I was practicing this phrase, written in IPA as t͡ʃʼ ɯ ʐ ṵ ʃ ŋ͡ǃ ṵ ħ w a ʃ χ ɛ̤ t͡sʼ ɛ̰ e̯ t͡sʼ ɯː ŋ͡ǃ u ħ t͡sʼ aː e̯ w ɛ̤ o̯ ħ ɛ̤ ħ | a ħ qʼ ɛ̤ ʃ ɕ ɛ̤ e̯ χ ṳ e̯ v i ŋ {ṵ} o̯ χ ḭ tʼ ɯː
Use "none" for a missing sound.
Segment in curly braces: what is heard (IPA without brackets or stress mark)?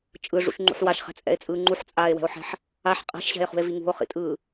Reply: ṳ